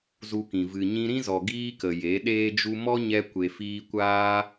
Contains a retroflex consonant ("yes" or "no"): no